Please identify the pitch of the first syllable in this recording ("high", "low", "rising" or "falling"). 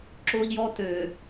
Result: high